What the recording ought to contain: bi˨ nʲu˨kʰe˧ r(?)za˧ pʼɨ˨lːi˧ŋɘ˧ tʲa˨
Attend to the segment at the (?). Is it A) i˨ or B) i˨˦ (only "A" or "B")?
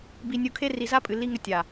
A